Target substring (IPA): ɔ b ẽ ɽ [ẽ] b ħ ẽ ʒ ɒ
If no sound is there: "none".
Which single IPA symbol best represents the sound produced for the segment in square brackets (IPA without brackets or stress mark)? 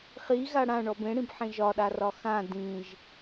ĩ